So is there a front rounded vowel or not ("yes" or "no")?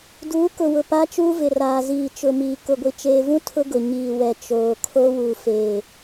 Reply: no